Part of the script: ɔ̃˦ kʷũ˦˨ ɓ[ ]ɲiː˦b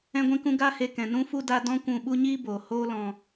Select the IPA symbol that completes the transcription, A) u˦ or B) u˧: A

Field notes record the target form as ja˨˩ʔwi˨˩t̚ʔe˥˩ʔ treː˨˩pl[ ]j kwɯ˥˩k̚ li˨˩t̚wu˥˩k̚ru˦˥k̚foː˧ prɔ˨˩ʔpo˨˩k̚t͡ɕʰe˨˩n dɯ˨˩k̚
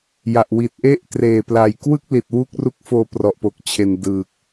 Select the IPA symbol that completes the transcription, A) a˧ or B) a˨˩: B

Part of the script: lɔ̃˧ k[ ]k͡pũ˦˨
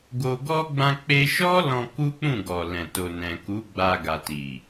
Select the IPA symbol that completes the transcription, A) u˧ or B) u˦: B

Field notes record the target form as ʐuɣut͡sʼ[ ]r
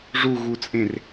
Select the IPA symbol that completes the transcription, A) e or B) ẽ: B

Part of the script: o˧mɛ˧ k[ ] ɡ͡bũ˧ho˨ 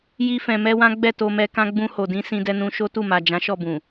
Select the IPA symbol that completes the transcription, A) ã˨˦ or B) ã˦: B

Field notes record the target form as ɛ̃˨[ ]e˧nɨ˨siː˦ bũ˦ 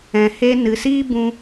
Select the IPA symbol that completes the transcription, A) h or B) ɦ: A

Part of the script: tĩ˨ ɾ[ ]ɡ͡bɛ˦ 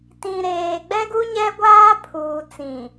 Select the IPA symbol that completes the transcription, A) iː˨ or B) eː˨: B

